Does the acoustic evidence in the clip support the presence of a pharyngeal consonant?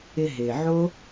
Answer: yes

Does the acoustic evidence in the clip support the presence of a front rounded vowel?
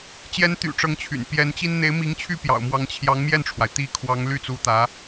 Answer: yes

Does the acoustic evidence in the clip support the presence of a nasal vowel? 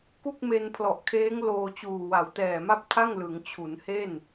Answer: no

